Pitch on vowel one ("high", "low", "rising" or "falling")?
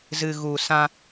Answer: low